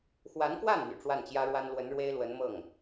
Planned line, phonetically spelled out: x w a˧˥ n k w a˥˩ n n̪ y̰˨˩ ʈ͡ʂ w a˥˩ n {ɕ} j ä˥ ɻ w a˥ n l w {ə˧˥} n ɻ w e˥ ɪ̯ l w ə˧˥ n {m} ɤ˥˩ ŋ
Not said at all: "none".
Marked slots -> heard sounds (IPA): t͡ɕ, ə˧˥, m

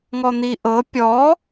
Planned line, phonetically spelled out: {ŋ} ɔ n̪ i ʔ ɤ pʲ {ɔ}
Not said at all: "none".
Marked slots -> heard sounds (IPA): ŋ, ɔ

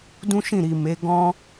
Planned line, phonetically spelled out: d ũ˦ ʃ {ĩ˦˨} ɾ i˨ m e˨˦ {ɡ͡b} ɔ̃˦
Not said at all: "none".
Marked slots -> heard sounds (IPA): ĩ˦˨, ɡ

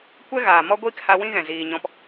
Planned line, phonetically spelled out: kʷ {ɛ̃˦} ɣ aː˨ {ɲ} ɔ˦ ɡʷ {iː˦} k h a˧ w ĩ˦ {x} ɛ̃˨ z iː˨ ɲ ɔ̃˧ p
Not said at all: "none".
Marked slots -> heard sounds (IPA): ɛ˦, m, iː˦, ɣ

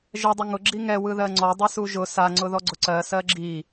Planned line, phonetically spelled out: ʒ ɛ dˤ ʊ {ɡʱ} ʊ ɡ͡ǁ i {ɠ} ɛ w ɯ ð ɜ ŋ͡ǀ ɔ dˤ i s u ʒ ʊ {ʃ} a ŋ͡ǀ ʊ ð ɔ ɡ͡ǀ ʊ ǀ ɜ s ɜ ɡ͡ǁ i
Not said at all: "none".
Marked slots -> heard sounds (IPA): ŋ, ŋ, s

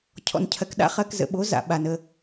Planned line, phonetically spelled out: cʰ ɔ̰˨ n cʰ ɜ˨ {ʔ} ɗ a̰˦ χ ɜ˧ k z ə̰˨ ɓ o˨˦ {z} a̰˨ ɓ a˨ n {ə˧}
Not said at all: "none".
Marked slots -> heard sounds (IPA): k, z, ə˧

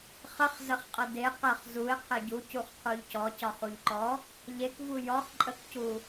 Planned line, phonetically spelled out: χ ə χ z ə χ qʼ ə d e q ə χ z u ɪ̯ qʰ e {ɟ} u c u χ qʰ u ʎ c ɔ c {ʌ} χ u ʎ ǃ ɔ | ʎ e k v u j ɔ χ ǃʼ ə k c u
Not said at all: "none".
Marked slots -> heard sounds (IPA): ɟ, ɒ

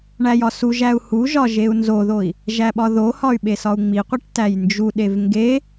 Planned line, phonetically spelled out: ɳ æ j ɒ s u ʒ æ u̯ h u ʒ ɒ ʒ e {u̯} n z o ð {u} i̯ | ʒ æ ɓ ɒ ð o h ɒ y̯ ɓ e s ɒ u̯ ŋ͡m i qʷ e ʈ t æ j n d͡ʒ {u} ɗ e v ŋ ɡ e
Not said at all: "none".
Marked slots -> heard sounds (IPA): u̯, o, u

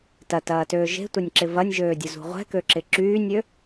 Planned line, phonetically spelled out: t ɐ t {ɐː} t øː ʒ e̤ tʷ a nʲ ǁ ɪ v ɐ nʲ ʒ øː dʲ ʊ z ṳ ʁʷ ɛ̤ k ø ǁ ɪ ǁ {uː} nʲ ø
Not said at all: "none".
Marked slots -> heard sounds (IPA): ɐː, yː

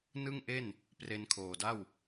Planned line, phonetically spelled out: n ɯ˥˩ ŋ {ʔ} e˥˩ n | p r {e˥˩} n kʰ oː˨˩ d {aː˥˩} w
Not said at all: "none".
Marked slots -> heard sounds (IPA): ʔ, e˧, a˥˩

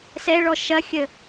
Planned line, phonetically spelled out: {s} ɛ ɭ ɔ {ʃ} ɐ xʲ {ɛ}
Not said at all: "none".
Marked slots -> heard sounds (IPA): s, ʃ, ə

